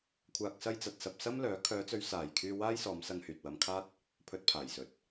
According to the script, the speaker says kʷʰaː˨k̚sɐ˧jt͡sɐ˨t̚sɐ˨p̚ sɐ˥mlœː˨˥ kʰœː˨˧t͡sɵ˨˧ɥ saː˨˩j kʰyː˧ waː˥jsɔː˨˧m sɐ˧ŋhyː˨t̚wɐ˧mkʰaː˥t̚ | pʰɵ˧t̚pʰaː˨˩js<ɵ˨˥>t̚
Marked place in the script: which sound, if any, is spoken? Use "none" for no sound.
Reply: ɵ˨˥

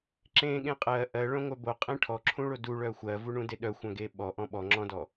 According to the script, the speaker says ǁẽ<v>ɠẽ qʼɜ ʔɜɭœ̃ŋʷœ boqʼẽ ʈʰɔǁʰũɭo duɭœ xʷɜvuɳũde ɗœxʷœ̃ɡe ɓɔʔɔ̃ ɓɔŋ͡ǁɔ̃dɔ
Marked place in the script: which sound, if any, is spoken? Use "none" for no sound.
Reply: none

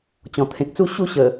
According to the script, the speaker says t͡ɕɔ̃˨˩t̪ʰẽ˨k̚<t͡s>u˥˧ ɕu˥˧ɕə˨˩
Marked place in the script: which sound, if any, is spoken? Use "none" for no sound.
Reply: t͡s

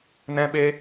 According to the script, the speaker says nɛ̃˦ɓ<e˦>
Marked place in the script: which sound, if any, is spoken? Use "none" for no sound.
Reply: e˦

